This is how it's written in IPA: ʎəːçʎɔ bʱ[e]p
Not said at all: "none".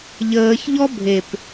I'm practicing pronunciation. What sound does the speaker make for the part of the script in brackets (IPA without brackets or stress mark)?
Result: e